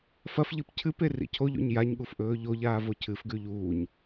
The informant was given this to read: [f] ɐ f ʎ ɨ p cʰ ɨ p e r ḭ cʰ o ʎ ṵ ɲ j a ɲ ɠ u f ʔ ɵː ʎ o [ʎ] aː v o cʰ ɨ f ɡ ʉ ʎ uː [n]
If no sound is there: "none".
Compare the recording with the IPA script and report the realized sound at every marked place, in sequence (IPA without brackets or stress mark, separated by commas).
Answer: f, ʎ, ɲ